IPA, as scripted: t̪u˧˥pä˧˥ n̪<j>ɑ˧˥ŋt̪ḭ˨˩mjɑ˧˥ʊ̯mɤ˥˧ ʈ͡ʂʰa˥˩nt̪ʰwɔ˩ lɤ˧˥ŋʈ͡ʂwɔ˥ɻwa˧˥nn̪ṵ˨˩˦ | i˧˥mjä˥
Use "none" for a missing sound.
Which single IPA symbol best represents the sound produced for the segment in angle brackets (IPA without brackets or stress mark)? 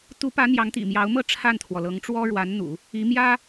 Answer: j